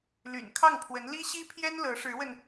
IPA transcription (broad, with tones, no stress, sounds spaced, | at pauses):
l y̰˨˩ n kʰ ɑ˥˩ ŋ pʰ w ə˧˥ n l i˥ ɕ i˥ pʰ j ɛ˥ n l ɤ˧˥ ʂ ɻ̩˧˥ w ə˧ n